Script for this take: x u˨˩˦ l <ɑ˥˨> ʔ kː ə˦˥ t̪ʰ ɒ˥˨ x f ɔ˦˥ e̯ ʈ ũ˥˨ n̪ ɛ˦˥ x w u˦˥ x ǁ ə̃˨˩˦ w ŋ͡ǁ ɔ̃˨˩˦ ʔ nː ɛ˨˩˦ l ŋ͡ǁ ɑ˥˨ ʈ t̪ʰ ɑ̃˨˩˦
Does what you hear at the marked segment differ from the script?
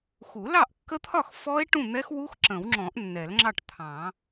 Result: no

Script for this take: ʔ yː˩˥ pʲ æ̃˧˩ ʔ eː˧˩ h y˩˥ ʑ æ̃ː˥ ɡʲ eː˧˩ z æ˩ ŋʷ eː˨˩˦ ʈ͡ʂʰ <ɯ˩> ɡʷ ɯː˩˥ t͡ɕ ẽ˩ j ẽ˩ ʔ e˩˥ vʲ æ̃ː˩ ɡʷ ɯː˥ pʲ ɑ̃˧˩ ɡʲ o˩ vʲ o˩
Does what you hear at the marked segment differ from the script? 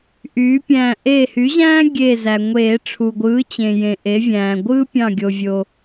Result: yes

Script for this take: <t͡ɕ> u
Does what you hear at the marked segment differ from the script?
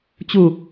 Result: no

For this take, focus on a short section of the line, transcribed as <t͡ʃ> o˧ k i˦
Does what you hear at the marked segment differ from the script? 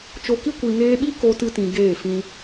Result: no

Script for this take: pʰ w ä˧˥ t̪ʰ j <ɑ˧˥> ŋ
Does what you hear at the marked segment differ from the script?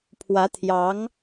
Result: no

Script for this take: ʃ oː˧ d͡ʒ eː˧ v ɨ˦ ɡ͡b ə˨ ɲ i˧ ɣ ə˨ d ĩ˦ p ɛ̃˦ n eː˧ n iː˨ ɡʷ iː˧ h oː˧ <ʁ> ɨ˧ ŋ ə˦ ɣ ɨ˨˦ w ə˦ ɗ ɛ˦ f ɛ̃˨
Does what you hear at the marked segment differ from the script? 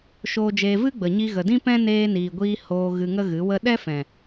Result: yes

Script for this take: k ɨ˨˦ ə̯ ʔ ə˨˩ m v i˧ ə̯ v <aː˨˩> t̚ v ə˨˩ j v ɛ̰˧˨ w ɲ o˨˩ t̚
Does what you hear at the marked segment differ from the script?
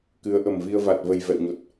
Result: yes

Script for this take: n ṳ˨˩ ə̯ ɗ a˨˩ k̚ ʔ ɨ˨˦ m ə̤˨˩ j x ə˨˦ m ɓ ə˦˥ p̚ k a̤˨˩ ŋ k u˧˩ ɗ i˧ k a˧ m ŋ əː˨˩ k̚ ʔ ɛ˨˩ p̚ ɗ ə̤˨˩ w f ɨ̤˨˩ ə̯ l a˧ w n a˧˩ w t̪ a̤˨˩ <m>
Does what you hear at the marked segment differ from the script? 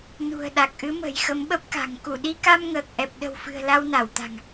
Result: yes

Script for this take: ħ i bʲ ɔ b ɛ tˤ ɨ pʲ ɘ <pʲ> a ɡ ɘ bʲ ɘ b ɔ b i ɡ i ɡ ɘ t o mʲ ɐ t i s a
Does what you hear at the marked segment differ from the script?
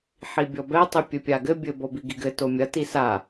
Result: no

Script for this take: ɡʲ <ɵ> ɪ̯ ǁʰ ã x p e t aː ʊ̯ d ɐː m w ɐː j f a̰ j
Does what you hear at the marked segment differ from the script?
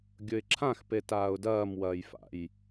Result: no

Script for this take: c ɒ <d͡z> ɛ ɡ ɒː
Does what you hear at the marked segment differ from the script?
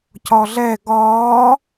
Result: yes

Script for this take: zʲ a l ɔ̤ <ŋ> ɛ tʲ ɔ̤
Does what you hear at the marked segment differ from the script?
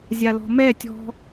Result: yes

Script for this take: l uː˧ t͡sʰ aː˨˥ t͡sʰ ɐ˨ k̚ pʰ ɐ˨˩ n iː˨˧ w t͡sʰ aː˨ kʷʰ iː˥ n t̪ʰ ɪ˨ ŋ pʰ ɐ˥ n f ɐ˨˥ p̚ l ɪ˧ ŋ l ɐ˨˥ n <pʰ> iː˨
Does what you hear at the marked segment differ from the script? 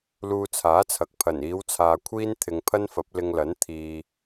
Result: yes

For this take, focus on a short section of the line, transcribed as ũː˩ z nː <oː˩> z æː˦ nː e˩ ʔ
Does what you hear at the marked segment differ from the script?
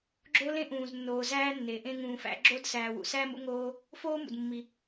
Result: no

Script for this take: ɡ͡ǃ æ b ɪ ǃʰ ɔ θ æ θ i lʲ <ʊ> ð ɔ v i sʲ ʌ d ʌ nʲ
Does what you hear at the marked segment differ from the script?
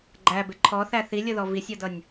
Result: no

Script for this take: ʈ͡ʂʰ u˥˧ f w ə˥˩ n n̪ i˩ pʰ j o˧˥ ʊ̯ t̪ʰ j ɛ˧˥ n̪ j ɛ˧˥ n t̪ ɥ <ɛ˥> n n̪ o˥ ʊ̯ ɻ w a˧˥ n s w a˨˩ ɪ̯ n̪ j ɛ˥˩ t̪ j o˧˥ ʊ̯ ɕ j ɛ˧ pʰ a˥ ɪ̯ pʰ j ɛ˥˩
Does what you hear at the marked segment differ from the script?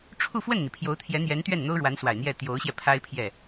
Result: yes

